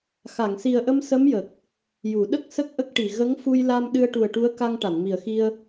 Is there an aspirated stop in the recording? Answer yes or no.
no